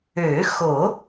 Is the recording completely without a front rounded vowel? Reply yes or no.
no